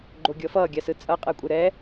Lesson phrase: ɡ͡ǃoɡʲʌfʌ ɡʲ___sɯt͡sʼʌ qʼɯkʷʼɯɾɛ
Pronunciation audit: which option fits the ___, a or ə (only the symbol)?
a